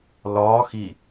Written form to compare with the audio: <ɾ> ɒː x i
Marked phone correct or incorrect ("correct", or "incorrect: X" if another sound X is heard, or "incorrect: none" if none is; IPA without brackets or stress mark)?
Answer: incorrect: l